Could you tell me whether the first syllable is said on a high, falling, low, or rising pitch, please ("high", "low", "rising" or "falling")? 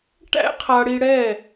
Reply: high